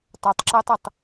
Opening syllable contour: low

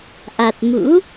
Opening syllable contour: low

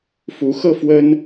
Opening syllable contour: rising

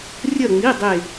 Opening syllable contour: falling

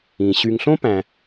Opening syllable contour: low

